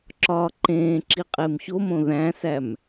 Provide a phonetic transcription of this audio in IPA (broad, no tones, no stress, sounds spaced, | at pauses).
ǁ ɒː ǃ ẽː ǁ i qʼ e m ç o m õ ð æ̃ s æ m